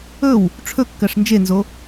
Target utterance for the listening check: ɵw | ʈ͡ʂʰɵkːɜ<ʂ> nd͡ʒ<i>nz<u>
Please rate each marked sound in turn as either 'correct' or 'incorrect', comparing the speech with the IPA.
correct, incorrect, incorrect

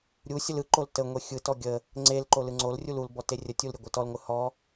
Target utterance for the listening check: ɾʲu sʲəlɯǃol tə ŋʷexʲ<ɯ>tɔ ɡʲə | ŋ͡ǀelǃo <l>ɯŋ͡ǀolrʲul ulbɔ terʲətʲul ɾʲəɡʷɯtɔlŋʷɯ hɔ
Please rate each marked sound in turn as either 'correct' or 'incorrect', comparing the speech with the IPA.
correct, correct

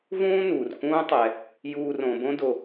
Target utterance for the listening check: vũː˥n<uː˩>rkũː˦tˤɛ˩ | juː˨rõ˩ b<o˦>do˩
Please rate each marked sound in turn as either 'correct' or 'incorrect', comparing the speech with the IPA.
correct, incorrect

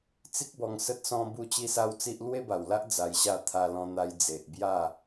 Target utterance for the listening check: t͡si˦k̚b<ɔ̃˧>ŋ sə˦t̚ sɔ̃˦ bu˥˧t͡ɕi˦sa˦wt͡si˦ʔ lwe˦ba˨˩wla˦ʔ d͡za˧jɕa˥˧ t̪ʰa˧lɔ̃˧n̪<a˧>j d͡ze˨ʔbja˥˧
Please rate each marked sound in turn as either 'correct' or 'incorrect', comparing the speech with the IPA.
incorrect, correct

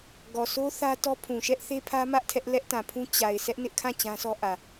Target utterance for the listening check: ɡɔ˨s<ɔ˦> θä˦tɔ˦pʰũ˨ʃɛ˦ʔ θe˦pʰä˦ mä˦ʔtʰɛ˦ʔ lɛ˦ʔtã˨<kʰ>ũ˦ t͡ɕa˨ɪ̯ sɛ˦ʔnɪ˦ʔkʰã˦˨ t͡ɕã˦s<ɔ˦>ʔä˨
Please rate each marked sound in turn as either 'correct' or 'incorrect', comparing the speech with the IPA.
incorrect, incorrect, correct

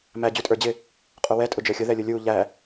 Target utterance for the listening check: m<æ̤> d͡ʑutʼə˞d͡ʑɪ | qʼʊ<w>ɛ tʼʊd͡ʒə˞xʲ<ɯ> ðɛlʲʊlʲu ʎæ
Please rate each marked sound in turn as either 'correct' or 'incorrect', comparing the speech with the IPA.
incorrect, correct, incorrect

